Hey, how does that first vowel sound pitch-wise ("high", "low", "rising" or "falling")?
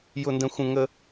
high